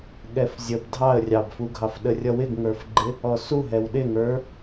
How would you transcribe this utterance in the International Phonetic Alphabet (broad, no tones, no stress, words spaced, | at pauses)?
ɠɛfzʲəb dʱɑə̯ rʲɑbfuɡʱɑfɗə rʲʌwɪɡŋə˞fɡ͡ǃɪ | ɔsuɦɛw ɗɪŋə˞